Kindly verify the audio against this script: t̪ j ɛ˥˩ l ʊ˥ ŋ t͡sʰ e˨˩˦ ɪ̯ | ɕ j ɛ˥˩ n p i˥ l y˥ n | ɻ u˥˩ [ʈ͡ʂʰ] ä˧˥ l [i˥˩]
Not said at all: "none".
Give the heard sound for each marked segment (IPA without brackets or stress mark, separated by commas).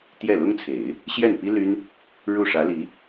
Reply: ʂ, i˧˥